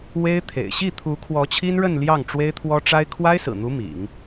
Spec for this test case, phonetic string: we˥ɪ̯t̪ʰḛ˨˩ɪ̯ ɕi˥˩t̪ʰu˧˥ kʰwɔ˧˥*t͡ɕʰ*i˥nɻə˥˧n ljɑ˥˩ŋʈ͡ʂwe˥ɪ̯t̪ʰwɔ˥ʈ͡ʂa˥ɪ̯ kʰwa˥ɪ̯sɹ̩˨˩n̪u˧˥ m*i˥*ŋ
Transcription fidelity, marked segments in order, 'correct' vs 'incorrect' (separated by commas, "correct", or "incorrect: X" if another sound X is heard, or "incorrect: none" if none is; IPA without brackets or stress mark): correct, incorrect: ḭ˨˩˦